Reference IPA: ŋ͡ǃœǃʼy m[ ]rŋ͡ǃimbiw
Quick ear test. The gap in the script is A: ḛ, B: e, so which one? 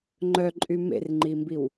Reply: A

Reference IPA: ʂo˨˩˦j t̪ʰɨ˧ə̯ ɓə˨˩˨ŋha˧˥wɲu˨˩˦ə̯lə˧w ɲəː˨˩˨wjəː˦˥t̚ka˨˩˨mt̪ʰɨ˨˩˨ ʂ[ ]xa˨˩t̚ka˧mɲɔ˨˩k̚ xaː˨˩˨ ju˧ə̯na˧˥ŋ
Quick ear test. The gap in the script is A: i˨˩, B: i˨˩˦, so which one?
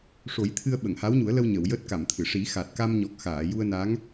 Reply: B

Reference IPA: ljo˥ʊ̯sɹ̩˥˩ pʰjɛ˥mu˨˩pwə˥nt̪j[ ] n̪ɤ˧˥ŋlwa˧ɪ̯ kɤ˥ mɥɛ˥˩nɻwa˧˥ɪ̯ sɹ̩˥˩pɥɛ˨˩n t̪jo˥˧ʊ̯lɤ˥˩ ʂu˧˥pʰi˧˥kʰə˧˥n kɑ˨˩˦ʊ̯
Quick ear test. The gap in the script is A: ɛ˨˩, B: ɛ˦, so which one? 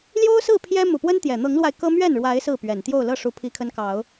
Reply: A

